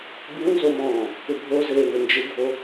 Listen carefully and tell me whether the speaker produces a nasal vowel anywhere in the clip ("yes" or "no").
yes